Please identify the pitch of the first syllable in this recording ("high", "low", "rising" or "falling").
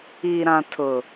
low